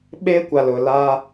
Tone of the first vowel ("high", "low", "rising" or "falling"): high